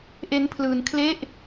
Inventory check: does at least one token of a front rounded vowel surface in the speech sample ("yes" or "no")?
no